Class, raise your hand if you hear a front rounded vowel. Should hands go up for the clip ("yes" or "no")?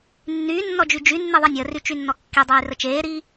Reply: yes